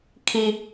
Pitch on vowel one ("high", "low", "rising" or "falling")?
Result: low